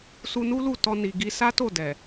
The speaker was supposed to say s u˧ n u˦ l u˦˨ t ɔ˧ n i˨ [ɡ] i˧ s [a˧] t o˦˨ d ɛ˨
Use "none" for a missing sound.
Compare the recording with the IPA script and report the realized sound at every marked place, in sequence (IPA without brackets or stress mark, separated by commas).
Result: ɡ, a˦